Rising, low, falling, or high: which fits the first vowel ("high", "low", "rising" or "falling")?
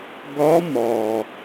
rising